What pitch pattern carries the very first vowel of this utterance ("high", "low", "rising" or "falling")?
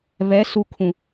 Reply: rising